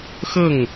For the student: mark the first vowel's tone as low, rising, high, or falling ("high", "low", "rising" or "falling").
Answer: falling